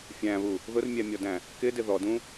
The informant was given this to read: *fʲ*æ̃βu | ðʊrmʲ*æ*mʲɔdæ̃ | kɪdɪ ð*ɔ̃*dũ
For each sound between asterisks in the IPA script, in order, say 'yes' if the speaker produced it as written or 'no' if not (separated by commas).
yes, yes, no